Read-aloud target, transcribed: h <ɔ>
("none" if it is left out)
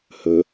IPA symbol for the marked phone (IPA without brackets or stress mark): ɵ